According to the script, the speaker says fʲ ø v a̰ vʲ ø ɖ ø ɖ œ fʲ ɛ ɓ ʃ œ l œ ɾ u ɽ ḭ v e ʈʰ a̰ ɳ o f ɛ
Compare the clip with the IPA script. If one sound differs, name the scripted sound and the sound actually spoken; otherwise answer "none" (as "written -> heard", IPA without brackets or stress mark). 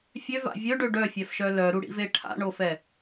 ɓ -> f